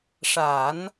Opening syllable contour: low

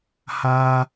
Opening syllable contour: high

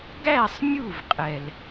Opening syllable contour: falling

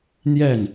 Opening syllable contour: falling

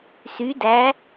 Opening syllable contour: rising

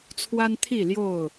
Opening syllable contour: high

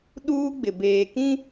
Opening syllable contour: high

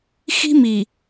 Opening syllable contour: high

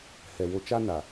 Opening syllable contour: low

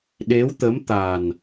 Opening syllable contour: rising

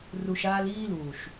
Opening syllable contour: low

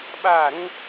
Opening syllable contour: falling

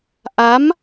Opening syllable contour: rising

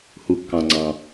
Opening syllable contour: low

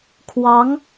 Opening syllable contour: rising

